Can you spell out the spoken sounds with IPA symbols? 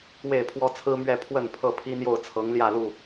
w e˥˨ ɪ̯ pʰ w ɔ˦ t͡sʰ ɹ̩˦ m ɥ ɛ˥˨ pʰ w ə˥˨ n pʰ ɤ˥˨ pʰ i˦ n̪ j o˥˨ ʊ̯ t͡sʰ ɤ˨˦ ŋ l j ä˥˨ l u˥˨

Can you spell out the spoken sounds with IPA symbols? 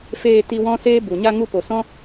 f eː˧ t i˧ w ɔ̃˦ s eː˦ b u˨ ɲ a˧ ŋ u˧ p o˨ s ɔ̃˦

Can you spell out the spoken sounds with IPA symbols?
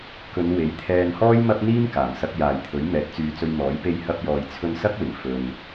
k ɵ˨˧ n w e˨˥ j t̪ʰ ɛː˧ n h ɔː˥ j m ɐ˥ p̚ n̪ iː˥ m k aː˨˩ m s ɐ˧ k̚ j aː˨ j t̪ʰ ɵ˨˥ ɥ m ɛː˨˥ t̚ t͡s yː˨˧ t͡s ɵ˧ ɥ m ɔː˨˥ j p e˧ j h ɐ˧ p̚ j ɔː˨ j t͡sʰ ɵ˧ n s ɐ˥ k̚ w ɪ˨˩ ŋ f ɵ˨ n

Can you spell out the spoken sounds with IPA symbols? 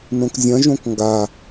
n õ k zʲ ɐ̃ ʒ õ k ŋ ɡ a

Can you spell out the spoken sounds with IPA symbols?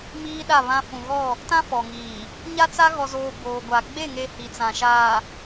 m iː˦ ɗ a˦˨ β ã˦ f ũ˨ ɣ ɔ˦˨ | t ã˦ f ɔ˨ ŋ iː˨ | ɲ a˦ t͡s a˦ ɣ ɔ˨ z oː˨ b oː˨ ɡʷ a˨ ɡ͡b e˦˨ ŋ e˦ h i˨ t͡s ã˨ ʃ aː˨

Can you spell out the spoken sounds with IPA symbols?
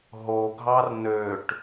ɦ o ɡʱ ɑ r n ø ʈ

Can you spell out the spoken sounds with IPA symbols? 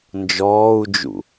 n d͡ʒ ɔː u̯ d͡ʒ ṵ

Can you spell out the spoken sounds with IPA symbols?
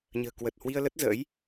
ɲ ə̤ː˨˩ k w ə˨˩ t̚ h w i˧ ə̯ l ə˦˥ t̚ z ə̰ː˧˥ j

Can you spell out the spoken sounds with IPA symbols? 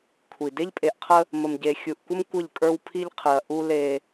kʷʰ i˨ d e˦ ʎ pʼ e˨ ʔ qʰ ə˦ | m ə˨ m ɟ e˨ xʲ u˨ ʔ kʷ ə˦ m kʷ ə˦˨ ʎ kʼ ə˞˦ w pʰ i˦ ʎ qʰ ɨ˨ ɐ̯ ʔ u˦ l e˦

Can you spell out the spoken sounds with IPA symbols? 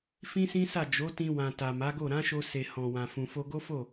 f ĩ˦ s ĩ˦ s a˦˨ d͡ʒ o˨˦ t ĩ˧ w ã˨ t a˨ m a˨˦ ɡ o˦˨ ɾ ã˨˦ ʃ o˧ s e˨ h ɔ̃˨ w ã˨ f ũ˨ f o˧ ɡ o˦ f o˦˨

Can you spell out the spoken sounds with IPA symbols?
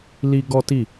l i˦ ɡ ɔ˦ t i˦˨

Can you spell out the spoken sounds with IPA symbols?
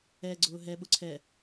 ɛ ɡ͡ǀ ʊː ɦ ɛ ɓ ʊ ǀʰ ɛ

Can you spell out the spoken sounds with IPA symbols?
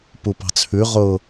p u p ɑ̤ t͡sʰ ʉ ʁ ʊ

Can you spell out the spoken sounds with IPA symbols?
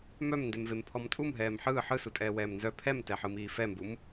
m œ m n d e m v e m pʰ ɔ m tʼ u m ɦ ɛː m ħ ɯː ħ ɯ s u tʼ ɛː w ɛː m n z œ pʰ ɛ m t ɛ ħ ɯ m iː f ɛ m b u m

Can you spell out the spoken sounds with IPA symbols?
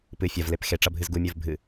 p ɨ fʲ ɐ v l e p x e ʈ͡ʂ ɐ bʱ ɨ z ɡ u mʲ ə˞ v bʱ ɨ

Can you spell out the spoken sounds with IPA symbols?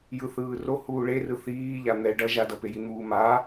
j ɯ θ ɯː r o h uː ɭ e r ɯ θ iː ʎ a n̪ ɛ ɖ ʌ ʒ a d ʌ p e j i n̪ uː m a

